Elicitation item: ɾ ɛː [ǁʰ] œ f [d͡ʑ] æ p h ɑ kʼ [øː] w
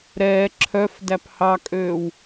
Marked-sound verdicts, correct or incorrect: correct, incorrect, correct

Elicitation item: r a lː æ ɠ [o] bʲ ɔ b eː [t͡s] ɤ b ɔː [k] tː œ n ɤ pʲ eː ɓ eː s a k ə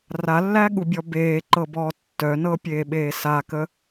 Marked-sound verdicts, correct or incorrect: incorrect, incorrect, incorrect

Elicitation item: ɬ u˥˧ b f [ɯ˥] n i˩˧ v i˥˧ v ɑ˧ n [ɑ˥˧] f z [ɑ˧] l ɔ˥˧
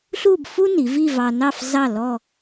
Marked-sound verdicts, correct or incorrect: incorrect, correct, incorrect

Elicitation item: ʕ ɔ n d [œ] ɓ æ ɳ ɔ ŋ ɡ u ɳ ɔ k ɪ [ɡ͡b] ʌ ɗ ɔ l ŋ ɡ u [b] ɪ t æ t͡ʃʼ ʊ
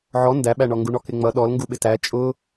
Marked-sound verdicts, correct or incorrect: incorrect, incorrect, incorrect

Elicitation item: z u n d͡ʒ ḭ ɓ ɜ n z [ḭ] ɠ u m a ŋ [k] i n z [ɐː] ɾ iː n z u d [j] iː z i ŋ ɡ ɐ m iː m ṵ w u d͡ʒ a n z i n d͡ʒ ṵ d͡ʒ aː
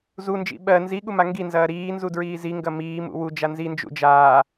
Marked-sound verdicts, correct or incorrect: incorrect, incorrect, correct, incorrect

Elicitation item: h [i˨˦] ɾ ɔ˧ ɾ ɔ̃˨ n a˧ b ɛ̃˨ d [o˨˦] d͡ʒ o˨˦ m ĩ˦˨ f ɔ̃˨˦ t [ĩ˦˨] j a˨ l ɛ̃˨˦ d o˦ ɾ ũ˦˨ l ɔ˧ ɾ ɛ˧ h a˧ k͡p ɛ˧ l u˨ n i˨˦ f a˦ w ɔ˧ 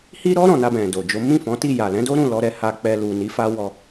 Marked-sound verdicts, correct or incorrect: incorrect, incorrect, incorrect

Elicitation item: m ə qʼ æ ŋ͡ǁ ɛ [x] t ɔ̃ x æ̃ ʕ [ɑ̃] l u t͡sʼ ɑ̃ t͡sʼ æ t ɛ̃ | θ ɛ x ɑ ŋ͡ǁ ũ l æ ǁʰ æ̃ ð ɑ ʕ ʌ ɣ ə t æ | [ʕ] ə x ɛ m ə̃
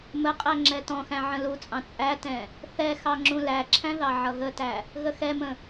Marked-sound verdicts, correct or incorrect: incorrect, incorrect, incorrect

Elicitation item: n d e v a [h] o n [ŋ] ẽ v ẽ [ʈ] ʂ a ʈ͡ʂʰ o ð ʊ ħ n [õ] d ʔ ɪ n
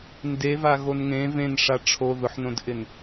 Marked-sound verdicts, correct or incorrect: incorrect, correct, incorrect, correct

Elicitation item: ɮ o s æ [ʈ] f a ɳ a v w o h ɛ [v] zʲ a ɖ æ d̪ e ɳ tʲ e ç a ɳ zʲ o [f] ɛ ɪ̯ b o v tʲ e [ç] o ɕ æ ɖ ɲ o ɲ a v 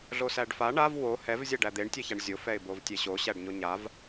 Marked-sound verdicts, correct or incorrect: incorrect, correct, correct, incorrect

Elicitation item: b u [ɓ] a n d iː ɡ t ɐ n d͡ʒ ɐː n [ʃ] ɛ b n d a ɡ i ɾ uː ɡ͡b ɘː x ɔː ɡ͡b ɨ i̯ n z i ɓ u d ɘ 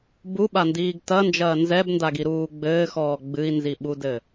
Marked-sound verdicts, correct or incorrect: correct, incorrect

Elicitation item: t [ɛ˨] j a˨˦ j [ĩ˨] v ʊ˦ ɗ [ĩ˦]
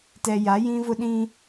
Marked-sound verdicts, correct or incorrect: correct, incorrect, correct

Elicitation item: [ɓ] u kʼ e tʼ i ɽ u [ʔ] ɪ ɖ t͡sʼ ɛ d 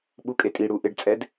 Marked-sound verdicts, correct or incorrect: correct, correct

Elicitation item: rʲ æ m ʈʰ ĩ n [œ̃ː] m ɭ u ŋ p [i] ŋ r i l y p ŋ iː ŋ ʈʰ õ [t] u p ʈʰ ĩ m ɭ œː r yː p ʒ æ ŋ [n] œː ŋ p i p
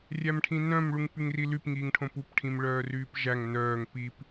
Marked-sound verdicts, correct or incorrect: incorrect, incorrect, incorrect, correct

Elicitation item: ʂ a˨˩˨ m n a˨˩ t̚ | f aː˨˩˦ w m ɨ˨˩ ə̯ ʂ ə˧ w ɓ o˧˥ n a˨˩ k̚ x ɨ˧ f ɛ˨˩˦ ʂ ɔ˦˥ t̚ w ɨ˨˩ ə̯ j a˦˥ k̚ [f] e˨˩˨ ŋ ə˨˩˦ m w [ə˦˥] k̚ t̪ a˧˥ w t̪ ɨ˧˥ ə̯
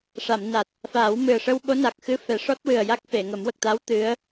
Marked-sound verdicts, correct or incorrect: correct, incorrect

